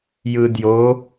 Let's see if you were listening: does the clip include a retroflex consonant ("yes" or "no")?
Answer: no